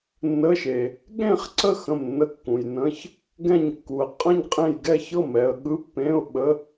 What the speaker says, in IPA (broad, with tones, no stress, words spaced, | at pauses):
nːə˧˥˧ʃe˨ | ɠẽ˥˨χǀə˥˨ xə̃˥˨mnːə˥˨kːũ˨j nə̃˧˥˧ç | ɡɛ̃˥˨ɲkːu˨ə̯ qʼə̃˥˨ɲ qʼẽ˥˨j ɡɛ˥˨çɤ˥˨mɛ˨ə̯ ɠɯ˧˥˧pːẽ˧˥˧ʊ̯ɓə˧˥˧